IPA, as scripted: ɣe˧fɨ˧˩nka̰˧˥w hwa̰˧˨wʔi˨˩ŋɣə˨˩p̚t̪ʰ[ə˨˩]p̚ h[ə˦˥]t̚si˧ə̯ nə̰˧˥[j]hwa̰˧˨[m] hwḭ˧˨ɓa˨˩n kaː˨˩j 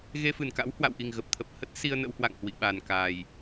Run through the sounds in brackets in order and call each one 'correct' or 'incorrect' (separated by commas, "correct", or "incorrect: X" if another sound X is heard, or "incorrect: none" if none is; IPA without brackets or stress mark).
correct, correct, incorrect: w, incorrect: ŋ